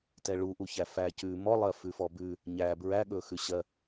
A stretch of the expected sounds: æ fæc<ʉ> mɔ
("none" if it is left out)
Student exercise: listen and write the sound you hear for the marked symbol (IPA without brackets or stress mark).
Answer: ʉ